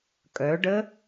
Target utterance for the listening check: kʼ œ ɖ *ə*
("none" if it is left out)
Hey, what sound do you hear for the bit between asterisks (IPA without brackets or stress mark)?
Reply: ə